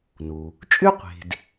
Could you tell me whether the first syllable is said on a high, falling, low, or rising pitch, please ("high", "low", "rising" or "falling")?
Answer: low